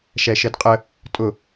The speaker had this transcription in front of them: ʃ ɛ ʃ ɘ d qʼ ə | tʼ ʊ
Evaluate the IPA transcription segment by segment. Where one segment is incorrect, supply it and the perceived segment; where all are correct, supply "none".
none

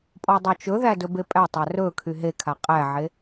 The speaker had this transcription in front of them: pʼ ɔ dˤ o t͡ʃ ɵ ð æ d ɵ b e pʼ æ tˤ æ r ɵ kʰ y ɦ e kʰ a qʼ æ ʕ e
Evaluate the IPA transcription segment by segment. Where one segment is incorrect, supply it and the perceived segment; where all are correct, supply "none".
none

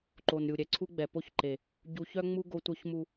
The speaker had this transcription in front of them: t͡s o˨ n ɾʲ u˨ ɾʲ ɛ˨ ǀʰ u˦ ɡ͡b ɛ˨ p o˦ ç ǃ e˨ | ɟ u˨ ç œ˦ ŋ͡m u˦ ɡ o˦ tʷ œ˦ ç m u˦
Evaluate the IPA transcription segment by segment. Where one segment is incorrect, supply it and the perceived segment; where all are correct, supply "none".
t͡s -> ǃ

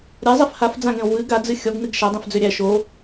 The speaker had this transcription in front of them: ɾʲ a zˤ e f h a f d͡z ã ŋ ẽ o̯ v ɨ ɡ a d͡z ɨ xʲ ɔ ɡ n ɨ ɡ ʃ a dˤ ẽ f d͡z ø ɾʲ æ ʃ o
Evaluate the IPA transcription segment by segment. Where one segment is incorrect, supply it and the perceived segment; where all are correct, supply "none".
none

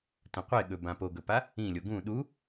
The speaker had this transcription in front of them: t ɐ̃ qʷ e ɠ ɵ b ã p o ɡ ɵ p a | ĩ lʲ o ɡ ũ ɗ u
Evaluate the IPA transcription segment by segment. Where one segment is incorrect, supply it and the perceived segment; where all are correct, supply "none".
none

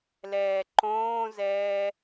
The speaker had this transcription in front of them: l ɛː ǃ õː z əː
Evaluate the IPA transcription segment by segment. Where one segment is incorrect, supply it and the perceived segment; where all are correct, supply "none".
əː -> ɛː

